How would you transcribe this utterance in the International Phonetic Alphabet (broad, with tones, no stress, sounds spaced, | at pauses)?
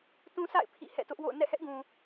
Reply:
t ũ˦ s a̰˦˨ ɪ̯ pʰ ḭ˦˨ h ɛ̰˦˨ t ʊ˦ ʔ w o̰˦˨ ʊ̯ n ɛ̰˦˨ h ɛ˦ ʔ ɡ ũ˨